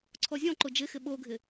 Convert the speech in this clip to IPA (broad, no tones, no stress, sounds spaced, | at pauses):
ǀʰ ɔ zʲ ɔ̃ ǃ ʊ d͡ʒ ɪ x ɪ ɓ o ɡʱ ɪ